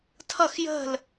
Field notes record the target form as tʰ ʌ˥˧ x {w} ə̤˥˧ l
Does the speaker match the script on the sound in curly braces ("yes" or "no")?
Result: no